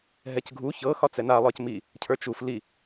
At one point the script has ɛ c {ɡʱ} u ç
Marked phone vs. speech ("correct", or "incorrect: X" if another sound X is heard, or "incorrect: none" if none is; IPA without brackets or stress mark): correct